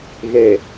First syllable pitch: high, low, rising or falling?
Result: low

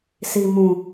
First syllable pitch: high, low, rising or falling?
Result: low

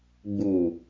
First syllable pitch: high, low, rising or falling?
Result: low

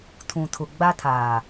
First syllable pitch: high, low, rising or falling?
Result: low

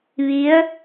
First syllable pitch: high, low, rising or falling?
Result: rising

